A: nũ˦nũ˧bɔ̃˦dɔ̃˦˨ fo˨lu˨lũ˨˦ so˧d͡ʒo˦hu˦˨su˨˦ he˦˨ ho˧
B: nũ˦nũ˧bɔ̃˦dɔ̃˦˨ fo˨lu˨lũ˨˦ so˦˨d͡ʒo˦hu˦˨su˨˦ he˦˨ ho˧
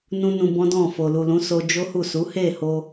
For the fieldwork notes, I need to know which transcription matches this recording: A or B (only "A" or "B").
A